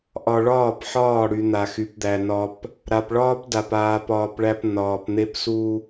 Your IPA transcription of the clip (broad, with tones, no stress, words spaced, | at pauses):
ʔɒ˨ɭɒː˦˨p ħɒː˦˨ɽy˨ n̪a˨xy˨pd̪æ˨ nɒ˨p | ɾa˨pɭɒː˦p da˨p aː˨pɒː˨pɭæ˨p nɒː˨pn̪e˦psu˦